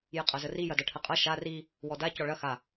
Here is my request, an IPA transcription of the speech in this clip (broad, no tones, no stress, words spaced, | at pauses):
jəqʼɐzəri jɐdɐʈʰəqʼɐ ʃa ri | wɔda cɔɭɐ xa